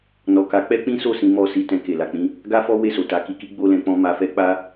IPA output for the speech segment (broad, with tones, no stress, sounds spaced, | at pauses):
n ɔ˨ k a˨˦ k͡p ɛ˦ k͡p ĩ˦ s o˦˨ s ĩ˨˦ m ɔ˦˨ s i˧ t ɛ̃˧ k e˨ l a˨ k͡p ĩ˨˦ | ɡ a˦ f ɔ˦ w e˦˨ s o˨ t a˨˦ k i˧ k i˦ ɡ͡b o˦ l ɛ̃˧ k͡p ɔ̃˦ m a˧ f ɛ˦ k͡p a˦